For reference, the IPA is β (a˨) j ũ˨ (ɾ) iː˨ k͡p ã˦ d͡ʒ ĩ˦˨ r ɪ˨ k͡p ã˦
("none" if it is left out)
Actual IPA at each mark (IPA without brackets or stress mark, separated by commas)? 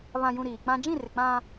ã˨, ɾ